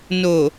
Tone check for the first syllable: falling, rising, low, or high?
low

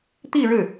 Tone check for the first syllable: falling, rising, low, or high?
falling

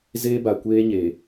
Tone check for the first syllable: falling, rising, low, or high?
high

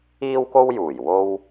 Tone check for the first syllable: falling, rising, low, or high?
high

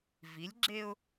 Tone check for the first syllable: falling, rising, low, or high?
rising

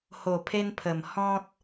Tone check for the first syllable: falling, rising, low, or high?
low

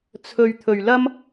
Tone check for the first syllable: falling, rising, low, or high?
low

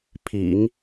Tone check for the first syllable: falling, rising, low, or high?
low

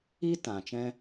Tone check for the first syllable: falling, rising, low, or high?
high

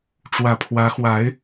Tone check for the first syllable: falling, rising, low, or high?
low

